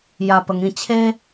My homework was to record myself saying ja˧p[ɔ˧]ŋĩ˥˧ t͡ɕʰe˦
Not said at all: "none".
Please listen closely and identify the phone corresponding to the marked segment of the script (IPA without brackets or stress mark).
ə˧